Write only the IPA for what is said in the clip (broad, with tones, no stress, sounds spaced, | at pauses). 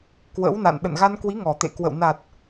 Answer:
k w ə̰˧˥ w n a̰˧˨ n ɗ ə̰˧˨ n ɣ a˧ n k w i˨˦ ŋ ɔ˨˩ t̪ ḛ˧˨ k w ə̰˧˨ w n a˨˩ t̚